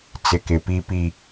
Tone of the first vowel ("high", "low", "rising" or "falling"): low